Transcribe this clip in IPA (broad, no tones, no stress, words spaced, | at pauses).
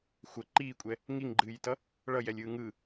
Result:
xʷɜ ǃiːkʷʼɛ | ŋiŋɡ͡ǃɨːjtʌ | ɭʌjɛlʲɯː ŋɯ